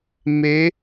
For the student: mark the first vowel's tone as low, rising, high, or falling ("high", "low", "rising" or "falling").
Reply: rising